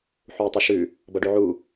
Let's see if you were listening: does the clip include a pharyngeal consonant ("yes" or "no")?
yes